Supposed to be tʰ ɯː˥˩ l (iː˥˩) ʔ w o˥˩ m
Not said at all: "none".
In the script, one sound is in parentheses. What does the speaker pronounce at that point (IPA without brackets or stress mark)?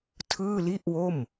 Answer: i˥˩